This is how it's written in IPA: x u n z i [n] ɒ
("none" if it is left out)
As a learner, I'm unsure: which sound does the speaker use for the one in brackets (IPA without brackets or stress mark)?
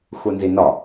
n